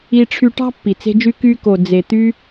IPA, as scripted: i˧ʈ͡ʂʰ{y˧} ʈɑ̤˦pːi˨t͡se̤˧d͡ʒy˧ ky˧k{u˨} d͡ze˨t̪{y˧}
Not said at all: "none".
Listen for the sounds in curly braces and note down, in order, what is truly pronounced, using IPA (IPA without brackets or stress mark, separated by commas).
y˧, o˨, y˧